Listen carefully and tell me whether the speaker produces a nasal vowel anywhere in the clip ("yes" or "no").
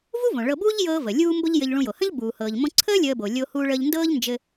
yes